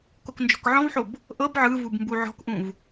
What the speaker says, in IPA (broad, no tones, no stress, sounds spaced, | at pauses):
k o k n d͡ʒ ɔ̤ k ʕ ɔ̃ v ħ o b | ʔ ɤ b ʕ ɯ v u b m b u ʕ ɔ̤ k ʔ ũ v